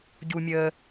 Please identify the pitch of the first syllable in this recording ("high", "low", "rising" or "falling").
low